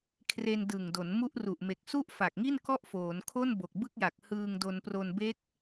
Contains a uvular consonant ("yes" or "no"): no